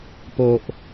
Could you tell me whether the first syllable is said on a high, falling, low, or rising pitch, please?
low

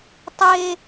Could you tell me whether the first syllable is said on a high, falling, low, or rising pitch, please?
high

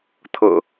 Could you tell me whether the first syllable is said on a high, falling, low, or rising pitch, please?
low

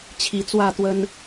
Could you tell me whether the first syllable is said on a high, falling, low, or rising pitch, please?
low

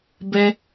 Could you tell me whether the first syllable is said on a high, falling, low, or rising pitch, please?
high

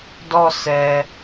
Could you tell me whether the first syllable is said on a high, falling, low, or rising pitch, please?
falling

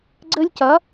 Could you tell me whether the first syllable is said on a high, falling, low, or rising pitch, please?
high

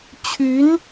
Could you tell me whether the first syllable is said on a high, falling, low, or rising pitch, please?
rising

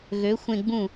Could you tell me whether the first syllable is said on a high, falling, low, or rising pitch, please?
rising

